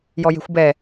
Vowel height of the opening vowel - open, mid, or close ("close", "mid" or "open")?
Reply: mid